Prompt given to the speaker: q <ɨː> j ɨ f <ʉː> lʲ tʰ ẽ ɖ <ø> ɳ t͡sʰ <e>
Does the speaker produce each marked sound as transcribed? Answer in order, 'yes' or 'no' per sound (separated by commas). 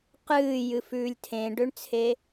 yes, yes, yes, yes